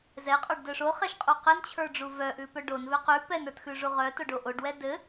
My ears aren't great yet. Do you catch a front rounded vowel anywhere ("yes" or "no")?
yes